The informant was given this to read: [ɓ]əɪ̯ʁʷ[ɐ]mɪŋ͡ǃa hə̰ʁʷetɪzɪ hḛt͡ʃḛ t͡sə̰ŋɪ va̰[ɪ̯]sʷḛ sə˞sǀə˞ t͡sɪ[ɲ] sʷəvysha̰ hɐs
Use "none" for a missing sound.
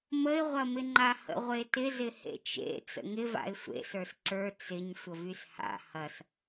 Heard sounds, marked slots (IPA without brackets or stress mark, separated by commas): m, ɐ, ɪ̯, ɲ